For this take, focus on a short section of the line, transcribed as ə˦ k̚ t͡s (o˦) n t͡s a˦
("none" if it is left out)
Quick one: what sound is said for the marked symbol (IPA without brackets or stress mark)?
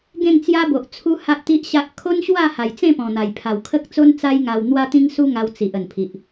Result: o˦